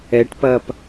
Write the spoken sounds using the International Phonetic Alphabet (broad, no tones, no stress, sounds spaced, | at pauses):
ɛ ʈ p ɐː p